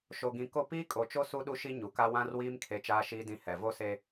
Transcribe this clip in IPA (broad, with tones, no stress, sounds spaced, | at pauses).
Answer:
ʃ o˨ ɡ ĩ˨ k o˦ p iː˦ kʼ o˨ t͡ʃ o˦ s u˦ ɗ u˦ ʃ i˦ ɲ u˨ k a˦ w ã˦ r w iː˦ m kʰ e˦ t͡ʃ aː˦ ʃ iː˦ d ĩ˦ h ɛ˨ v o˦ s e˦